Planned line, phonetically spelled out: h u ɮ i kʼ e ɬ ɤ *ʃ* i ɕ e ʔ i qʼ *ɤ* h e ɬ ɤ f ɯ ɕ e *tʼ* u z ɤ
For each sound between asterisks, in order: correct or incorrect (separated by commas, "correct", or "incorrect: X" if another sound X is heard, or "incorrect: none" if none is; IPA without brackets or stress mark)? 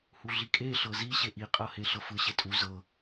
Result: incorrect: z, correct, correct